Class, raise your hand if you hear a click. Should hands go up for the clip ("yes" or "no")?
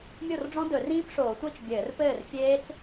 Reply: no